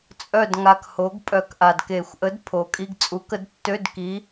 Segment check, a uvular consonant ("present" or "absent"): absent